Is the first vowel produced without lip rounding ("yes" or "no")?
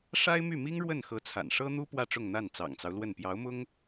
yes